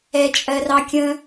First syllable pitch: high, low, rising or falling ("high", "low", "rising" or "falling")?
low